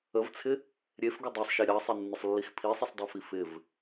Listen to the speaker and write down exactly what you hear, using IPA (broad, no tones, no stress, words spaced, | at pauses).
əvt͡sʰɪ | ɾʲefɡʏ dˤɑsˤʃe ɾʲɑsˤɪnːʏsˤlːix pʰisˤɪsˤdˤefi fɪv